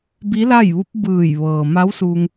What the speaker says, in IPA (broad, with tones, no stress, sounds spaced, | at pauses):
b i˧˥ l a˥˨ j ʋ u˧˥ p̚ b ɯː˧˩ j ʋ ɤː˩ m a˧˥ w s u˧ ŋ